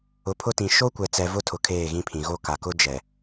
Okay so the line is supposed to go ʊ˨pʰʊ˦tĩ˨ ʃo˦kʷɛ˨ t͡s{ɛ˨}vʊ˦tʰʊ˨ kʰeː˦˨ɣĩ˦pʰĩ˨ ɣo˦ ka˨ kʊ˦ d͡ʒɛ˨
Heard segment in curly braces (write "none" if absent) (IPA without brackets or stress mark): ɛ˨